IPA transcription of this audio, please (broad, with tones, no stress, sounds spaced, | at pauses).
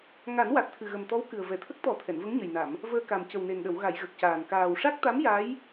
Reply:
ŋ a˨˩˦ n w a˨˩ t̚ t̪ʰ ɨ˨˩ ɣ ə˨˩ m t̪ ɔ˧˥ w k ɨ˨˩ ə̯ v ɛ˨˩ t̪ʰ ə˦˥ k̚ t̪ ɔ˨˩˦ t̪ʰ ɛ˨˩˨ n v ə˧˥ ŋ ɲ ə˨˩ j n a˨˩˨ m | v əː˧ k a˨˩ m c ə˨˩ w n e˨˩ n ɗ ə˨˩˨ w ɣ a˨˩˨ j ɣ ə˨˩ k̚ c aː˨˩ n k aː˨˩ w ʂ a˦˥ k̚ t̪ a˧˥ m j a˧˥ j